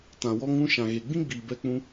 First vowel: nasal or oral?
nasal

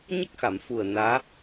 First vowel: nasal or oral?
oral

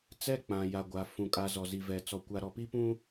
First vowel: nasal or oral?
oral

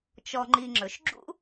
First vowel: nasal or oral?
oral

